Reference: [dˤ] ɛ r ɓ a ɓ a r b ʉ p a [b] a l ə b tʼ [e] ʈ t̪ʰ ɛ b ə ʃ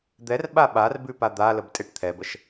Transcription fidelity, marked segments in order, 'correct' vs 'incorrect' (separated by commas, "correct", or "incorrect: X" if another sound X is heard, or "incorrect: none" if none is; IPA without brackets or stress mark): incorrect: d̪, incorrect: d̪, correct